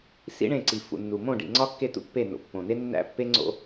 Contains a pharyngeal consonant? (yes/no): no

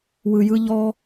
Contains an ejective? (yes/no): no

